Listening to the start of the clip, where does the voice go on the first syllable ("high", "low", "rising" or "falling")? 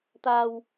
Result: low